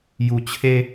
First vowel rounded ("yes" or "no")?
yes